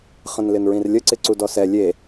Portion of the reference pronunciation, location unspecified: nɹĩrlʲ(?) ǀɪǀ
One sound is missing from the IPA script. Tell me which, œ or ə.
ə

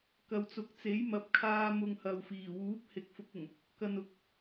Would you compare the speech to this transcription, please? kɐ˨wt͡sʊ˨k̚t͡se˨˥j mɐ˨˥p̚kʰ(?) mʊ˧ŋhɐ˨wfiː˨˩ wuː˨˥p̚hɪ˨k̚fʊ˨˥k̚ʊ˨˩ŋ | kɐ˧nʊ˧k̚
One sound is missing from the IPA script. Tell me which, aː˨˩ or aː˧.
aː˧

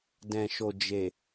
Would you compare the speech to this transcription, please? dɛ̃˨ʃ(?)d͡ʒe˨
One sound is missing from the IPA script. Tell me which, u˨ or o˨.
o˨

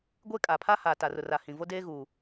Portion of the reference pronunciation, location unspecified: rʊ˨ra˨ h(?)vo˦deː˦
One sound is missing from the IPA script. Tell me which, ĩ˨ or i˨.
ĩ˨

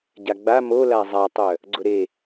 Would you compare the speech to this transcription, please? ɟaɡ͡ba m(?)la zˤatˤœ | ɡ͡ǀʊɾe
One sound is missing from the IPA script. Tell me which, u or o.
o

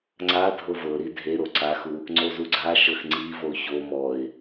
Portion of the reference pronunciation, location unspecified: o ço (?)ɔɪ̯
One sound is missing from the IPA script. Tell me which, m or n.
m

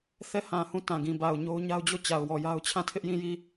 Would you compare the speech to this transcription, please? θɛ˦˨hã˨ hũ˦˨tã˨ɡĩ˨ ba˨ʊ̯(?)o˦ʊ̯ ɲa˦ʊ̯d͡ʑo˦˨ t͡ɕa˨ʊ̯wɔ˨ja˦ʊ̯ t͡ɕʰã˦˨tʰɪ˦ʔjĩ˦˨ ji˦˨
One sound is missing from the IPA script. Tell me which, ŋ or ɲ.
ɲ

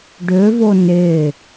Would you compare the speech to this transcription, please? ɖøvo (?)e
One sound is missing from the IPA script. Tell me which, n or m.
n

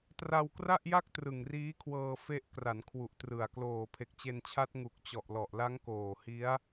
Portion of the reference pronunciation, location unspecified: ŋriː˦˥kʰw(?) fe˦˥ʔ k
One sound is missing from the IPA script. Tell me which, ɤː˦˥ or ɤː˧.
ɤː˧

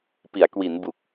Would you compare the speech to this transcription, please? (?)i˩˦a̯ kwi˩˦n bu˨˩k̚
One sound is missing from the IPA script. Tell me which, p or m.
p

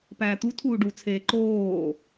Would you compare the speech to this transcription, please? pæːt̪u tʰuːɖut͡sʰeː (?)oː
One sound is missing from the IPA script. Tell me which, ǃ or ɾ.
ǃ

